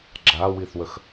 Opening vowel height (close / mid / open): open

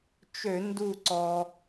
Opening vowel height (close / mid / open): mid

